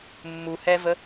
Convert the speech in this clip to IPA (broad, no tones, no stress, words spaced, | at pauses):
mːuhɛvə